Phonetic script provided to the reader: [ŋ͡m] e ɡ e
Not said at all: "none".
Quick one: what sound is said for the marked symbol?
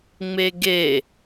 ŋ͡m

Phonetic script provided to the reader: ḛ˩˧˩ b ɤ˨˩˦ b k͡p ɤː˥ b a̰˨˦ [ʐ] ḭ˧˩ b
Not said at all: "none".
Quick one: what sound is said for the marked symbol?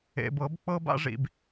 ʐ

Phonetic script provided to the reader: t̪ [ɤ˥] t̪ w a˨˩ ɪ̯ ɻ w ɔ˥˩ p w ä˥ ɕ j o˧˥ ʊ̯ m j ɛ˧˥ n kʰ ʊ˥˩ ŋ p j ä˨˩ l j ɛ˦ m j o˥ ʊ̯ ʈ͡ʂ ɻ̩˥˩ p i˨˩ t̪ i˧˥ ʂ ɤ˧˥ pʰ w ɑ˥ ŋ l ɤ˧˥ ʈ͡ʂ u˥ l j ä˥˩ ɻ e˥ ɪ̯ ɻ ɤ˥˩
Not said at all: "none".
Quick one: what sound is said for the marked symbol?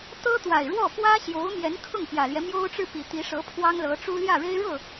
ɤ˥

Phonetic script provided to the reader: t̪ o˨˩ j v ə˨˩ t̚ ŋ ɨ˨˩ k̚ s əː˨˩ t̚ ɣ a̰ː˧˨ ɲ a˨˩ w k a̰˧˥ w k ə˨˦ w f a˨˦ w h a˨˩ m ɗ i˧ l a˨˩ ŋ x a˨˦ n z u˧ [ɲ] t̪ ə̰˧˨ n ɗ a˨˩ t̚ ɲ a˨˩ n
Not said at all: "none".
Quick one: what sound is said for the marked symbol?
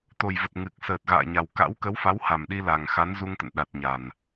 ŋ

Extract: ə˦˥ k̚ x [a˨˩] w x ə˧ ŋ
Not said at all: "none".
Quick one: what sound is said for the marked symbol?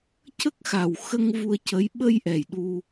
a˨˩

